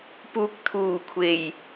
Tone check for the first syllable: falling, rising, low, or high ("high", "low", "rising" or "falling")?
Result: low